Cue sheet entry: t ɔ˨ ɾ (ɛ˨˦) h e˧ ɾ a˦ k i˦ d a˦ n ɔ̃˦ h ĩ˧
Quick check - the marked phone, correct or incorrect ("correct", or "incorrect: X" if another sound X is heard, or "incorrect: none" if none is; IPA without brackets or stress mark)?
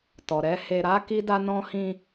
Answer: correct